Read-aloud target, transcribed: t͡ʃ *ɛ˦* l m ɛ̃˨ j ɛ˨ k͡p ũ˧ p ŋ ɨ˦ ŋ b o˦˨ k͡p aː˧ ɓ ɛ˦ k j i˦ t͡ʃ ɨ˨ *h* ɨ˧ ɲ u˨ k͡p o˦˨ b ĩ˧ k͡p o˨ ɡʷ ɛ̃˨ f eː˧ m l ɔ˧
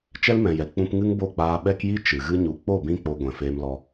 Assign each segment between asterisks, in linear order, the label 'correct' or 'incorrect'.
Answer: correct, incorrect

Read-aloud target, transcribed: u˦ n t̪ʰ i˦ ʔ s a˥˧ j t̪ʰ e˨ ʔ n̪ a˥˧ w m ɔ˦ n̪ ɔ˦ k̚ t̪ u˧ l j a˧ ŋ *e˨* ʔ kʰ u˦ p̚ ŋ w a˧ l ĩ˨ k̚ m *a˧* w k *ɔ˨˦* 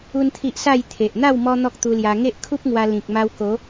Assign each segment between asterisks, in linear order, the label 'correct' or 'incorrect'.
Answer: incorrect, correct, incorrect

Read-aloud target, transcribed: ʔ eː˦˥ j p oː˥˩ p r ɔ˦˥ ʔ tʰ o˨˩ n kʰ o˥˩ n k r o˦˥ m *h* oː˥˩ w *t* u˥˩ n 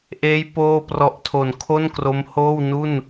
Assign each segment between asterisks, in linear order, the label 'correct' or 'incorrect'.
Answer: correct, incorrect

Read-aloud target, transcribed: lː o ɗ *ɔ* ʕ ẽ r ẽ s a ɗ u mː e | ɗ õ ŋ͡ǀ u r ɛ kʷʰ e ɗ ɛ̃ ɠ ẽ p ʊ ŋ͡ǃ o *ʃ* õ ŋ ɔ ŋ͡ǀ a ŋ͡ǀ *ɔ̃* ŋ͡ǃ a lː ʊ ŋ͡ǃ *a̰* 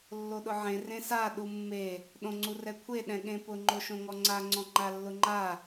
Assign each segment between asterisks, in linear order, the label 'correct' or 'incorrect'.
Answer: incorrect, correct, correct, incorrect

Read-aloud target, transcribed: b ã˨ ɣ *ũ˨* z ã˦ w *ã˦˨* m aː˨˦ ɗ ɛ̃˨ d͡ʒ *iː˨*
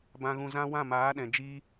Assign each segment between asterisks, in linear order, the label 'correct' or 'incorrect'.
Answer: correct, correct, incorrect

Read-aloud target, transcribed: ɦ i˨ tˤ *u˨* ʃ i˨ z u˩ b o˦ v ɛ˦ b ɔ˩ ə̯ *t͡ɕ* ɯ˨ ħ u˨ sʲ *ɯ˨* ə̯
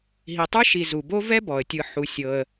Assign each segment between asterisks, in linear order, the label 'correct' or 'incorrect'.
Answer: incorrect, incorrect, incorrect

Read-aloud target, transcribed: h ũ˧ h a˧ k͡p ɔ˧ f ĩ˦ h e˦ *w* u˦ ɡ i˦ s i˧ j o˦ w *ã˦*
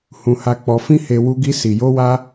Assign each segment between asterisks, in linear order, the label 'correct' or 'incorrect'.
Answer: correct, incorrect

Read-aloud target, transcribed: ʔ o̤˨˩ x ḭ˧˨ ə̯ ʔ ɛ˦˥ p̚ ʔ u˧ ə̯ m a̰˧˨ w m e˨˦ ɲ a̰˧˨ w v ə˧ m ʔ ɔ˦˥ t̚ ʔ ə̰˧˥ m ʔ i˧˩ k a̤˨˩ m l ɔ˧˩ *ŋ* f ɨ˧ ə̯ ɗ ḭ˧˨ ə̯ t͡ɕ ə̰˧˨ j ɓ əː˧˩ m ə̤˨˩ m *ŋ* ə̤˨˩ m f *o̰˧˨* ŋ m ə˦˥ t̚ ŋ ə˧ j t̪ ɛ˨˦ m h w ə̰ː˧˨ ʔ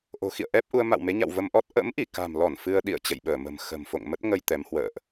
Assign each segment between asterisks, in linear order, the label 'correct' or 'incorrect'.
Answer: incorrect, incorrect, correct

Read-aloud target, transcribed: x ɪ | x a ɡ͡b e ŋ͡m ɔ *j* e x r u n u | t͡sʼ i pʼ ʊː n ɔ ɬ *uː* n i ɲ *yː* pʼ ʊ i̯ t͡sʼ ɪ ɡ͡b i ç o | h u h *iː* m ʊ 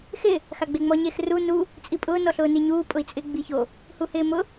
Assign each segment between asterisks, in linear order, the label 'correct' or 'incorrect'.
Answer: incorrect, incorrect, incorrect, incorrect

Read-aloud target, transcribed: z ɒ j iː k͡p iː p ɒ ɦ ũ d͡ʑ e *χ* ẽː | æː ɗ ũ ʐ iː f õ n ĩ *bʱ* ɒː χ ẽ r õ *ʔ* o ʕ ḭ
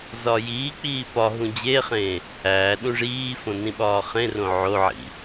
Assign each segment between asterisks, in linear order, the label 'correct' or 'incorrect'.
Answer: correct, incorrect, incorrect

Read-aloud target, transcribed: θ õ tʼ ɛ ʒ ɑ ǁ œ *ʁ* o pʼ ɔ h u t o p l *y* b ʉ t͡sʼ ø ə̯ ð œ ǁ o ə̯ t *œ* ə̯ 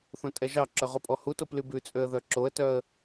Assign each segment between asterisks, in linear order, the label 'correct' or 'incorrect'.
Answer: correct, correct, correct

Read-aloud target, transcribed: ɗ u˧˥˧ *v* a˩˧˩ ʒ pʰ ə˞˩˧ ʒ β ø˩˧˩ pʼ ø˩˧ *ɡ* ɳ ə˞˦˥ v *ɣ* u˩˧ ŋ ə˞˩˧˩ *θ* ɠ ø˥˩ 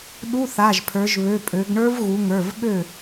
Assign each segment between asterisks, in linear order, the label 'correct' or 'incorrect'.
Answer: incorrect, correct, correct, incorrect

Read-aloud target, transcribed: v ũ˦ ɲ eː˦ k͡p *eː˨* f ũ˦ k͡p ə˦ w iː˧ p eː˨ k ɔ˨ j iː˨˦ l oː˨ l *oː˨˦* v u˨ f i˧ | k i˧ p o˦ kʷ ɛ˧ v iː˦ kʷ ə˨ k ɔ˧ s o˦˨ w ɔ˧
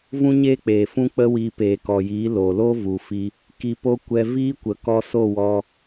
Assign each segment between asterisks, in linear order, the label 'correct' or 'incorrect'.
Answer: correct, incorrect

